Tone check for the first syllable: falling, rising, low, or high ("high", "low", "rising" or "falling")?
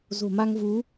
low